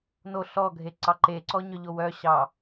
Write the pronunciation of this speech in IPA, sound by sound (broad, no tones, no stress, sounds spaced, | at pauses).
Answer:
n o ɬ ɔ ɡʱ e ǀ ɑ ǃ e ǀ ɔ ɲ œ ʎ o w œ ɕ ɑ